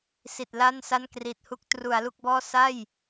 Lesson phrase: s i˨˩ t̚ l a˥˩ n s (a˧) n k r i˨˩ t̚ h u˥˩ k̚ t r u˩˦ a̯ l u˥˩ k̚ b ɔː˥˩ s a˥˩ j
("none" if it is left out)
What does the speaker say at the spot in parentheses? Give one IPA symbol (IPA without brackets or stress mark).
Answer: a˥˩